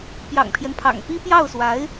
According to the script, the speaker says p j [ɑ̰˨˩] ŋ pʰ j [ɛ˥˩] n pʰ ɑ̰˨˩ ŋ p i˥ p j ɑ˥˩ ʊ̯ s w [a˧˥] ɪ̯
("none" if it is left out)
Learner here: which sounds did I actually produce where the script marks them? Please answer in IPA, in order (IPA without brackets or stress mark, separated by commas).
ɑ̰˨˩, ɛ˦, a˧˥